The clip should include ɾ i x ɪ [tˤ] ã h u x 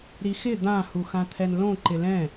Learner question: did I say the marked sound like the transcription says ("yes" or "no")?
no